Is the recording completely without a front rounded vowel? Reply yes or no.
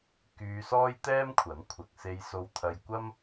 no